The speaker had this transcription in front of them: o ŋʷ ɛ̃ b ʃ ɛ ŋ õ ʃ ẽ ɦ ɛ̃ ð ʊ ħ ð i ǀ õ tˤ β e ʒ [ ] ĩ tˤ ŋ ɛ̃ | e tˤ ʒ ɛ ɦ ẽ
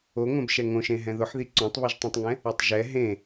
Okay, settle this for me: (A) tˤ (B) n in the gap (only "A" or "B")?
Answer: A